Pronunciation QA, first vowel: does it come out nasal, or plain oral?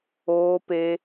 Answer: oral